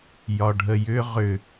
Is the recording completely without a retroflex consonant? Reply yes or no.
no